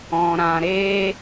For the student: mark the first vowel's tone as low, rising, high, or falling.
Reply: low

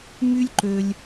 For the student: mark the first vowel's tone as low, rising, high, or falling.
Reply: high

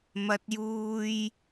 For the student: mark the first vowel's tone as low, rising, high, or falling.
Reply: high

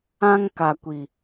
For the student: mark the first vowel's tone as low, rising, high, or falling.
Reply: high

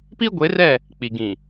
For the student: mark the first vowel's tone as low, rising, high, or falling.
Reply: high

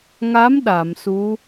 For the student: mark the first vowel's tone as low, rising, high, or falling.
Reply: rising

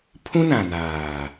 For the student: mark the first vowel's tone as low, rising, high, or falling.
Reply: high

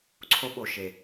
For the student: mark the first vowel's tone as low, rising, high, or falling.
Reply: high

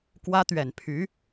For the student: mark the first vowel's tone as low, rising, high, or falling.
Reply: high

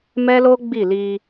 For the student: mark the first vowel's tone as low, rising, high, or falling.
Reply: high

